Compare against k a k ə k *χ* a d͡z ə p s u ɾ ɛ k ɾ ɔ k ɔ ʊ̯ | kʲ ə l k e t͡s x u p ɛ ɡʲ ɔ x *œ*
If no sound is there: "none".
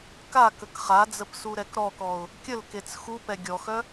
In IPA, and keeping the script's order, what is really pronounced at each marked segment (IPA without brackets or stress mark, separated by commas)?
χ, œ